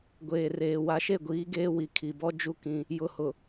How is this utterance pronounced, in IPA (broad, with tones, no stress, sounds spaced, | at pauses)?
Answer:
ɡʷ eː˨ r eː˨ w a˨ ʃ e˦˨ ɡʷ iː˨˦ ɡ eː˦ w i˨ kʰ i˨ b ɔ˦ d͡ʒ u˦ k ĩ˦ | j ʊ˨ h ʊ˨